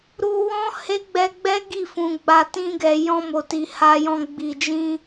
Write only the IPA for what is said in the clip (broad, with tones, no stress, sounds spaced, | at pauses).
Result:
ɾ u˧ w ɔ̃˦ h e˦ ɡ͡b ɛ˧ ɡ͡b ɛ˦ ɡ i˦˨ f ũ˨ ɡ͡b a˨ t ĩ˧ ɡ ɛ˨ j ɔ̃˧ m o˨ t i˨ h a˨ j ɔ̃˨ ɡ͡b i˨ d͡ʒ ĩ˧